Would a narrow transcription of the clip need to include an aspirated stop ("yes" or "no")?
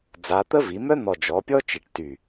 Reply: no